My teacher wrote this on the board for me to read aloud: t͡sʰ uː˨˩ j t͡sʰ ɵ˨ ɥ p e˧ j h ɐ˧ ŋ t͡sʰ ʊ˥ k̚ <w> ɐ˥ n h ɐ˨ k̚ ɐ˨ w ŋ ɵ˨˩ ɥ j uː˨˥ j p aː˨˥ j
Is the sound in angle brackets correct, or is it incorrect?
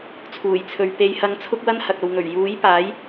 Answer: correct